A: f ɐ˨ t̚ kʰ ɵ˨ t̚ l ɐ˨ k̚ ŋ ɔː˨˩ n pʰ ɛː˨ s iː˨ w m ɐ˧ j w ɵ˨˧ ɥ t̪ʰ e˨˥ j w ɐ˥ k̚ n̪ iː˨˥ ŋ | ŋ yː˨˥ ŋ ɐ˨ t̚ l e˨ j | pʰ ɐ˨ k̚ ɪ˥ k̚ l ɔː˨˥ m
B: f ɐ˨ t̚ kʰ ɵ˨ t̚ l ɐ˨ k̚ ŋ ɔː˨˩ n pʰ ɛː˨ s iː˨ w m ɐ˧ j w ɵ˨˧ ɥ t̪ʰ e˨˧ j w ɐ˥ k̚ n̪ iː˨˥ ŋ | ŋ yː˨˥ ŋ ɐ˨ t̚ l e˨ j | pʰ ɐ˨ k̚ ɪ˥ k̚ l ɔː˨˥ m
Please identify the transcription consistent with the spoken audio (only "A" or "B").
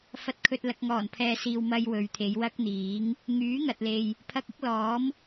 B